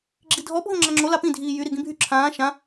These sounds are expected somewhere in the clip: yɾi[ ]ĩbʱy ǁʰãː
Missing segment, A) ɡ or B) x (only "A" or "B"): A